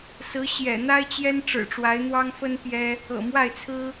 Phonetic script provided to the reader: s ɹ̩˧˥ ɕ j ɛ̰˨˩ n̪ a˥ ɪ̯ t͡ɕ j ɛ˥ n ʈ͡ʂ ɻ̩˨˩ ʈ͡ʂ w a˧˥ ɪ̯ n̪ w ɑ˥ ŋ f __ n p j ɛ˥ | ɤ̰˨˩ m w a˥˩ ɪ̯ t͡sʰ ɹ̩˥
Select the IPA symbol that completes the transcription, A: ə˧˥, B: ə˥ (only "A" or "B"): B